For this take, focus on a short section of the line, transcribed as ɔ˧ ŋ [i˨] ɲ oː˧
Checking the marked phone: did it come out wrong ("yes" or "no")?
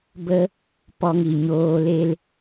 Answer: no